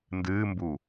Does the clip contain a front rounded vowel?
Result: no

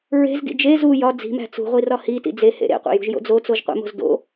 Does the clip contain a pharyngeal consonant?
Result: no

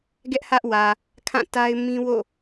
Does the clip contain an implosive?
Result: no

